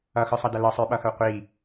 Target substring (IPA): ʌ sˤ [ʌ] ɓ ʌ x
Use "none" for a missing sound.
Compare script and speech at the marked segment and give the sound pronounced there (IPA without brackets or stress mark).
ə˞